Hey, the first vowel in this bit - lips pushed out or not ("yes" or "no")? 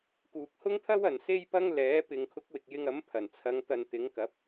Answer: yes